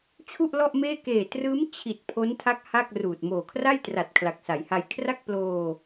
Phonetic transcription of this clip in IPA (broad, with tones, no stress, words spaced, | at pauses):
t͡ɕʰu˥˩ʔlɔ˥˩ʔmeː˥˩ keː˨˩trɯː˦˥m t͡ɕʰi˨˩t̚ pʰo˦˥ntʰa˦˥k̚ ha˥˩k̚ruː˨˩t̚ moː˨˩kʰra˥˩jtra˨˩t̚ kʰla˨˩k̚sa˩˦jha˧j kʰra˥˩k̚ploː˧